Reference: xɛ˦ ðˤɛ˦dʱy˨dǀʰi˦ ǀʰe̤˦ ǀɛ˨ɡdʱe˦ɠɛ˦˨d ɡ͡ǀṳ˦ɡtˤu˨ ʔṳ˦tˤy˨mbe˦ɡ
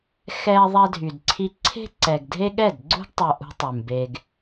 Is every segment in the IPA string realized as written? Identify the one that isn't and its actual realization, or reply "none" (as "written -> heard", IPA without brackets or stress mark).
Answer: none